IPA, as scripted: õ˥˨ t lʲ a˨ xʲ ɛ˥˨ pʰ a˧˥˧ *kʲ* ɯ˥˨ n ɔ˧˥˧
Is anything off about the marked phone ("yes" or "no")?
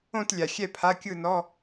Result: no